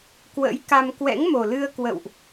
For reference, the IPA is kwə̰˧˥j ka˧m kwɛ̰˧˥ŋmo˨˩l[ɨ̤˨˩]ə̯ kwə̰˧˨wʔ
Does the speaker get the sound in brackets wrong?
yes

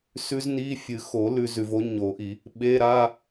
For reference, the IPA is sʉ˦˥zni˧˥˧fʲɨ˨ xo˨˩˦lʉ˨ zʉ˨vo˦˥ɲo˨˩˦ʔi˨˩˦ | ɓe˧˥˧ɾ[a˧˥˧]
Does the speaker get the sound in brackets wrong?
no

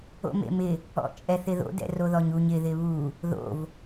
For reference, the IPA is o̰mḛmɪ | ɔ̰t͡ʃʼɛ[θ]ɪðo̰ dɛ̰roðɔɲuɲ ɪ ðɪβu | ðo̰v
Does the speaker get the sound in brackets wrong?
no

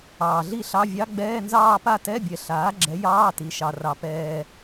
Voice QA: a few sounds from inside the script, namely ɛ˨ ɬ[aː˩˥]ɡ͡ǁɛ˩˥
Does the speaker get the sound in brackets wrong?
no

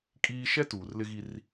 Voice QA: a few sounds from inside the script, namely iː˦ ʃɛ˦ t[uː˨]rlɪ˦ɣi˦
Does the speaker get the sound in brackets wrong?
no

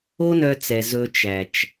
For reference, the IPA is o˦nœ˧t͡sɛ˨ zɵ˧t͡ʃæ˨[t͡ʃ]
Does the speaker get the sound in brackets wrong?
no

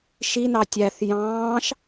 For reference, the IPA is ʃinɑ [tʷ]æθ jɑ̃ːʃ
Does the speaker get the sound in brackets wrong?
yes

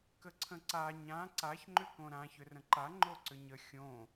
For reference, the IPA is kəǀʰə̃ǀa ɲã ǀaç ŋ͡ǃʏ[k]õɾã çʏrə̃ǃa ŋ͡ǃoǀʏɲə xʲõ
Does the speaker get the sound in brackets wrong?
no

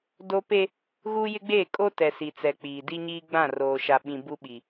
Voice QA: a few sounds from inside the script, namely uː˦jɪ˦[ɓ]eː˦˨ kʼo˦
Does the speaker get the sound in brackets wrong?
yes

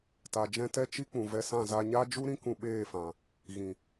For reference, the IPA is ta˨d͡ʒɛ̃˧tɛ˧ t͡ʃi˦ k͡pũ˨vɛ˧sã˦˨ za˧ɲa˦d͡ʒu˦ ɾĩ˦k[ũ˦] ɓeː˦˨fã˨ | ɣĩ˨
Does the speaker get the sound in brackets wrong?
yes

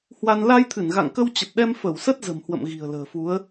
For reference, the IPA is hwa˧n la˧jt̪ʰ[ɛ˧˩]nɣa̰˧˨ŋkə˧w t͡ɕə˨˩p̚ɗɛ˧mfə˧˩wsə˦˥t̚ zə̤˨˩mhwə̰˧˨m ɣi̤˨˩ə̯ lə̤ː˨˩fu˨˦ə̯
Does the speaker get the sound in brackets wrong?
yes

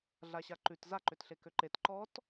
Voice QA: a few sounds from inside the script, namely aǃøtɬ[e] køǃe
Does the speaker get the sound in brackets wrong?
no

